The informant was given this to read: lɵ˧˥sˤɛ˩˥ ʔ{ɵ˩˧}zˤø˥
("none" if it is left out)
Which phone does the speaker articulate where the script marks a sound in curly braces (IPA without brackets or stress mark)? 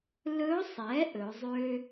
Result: ɵ˩˧